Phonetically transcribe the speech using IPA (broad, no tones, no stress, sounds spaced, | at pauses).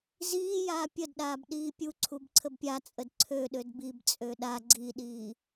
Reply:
z iː j aː pʲ ə d ɗ aː b ɗ iː pʲ u ǀʰ u b ǀʰ ə b pʲ a t͡sʼ ə d ǀʰ ø ɗ ø d b i b t͡sʼ ø ɗ a ɡ͡ǀ i ɗ iː